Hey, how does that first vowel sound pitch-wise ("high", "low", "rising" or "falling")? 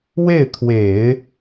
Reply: falling